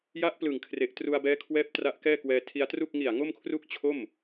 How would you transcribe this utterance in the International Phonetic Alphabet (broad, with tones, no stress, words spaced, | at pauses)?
ja˦˥ʔplɯ˨˩ŋkʰre˨˩ʔ tru˧a̯bɛː˦˥kʰwɛː˦˥p̚ tra˦˥ʔkɛː˥˩kwɛː˧ tʰi˧a̯tru˥˩k̚ ŋi˨˩a̯ ŋo˥˩mkʰru˥˩k̚ t͡ɕʰo˥˩m